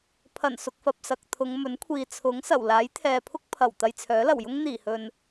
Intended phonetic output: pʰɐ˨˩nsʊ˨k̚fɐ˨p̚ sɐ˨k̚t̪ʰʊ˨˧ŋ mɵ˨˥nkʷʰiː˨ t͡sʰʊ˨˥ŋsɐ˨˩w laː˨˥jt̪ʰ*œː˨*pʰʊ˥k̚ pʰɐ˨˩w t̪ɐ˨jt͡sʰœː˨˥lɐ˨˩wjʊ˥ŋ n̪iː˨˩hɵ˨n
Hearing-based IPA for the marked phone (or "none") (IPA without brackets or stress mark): ɛː˨